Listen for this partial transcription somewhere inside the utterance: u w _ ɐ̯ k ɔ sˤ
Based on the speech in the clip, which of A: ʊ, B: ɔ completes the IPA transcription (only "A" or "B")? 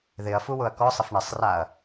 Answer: A